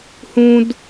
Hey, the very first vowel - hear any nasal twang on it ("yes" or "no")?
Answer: yes